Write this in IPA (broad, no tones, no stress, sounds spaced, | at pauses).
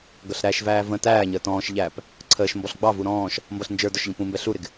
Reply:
ɡ ʌ ɬ ɾ æ ʃ v æː v ə̃ t æː ɲ əː t ɔ̃ː ʃ ʎ æː p | ǀʰ əː ʃ m b ɔ ɬ ɡ͡b ɑ v u ɾ ɔ̃ː ʃ | m b ʌ ɬ n d͡ʒ ə˞ d ɔ ʃ ʎ ə̃ p ũ m b ɛ ɬ u ɾ ɪ ɡ